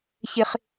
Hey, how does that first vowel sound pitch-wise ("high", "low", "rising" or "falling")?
high